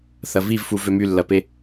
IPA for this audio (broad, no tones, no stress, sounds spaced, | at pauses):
θ ɐ v i v f u v ø m y lː ɐ p e